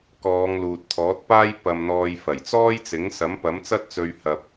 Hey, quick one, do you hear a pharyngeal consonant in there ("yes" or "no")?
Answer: no